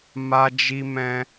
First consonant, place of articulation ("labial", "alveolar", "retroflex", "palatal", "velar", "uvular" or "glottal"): labial